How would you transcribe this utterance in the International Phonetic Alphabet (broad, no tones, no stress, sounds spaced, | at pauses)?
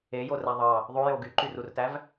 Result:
e j o r æ ðˤ ɑ | ðˤ o j o ɡ y ǃ y r u r t æ v